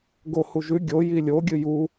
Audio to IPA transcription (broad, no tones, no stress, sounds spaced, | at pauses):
ɡ o h u ʒ ʉ ɡʲ o j i lʲ o ɡʲ ɨ j u